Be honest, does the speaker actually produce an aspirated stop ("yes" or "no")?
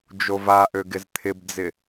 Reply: yes